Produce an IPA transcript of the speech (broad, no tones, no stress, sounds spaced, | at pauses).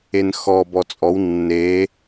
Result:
e n x ɔ b ɔ t͡sʼ ɔ w nː e